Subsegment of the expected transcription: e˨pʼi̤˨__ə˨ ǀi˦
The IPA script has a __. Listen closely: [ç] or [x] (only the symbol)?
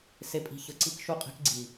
ç